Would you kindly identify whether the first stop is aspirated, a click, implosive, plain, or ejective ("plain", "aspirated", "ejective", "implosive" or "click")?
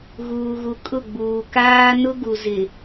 ejective